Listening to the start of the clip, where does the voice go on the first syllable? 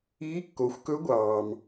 rising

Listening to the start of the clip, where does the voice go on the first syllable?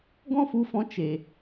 high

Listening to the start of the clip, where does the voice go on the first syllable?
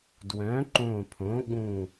rising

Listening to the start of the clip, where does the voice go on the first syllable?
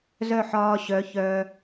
falling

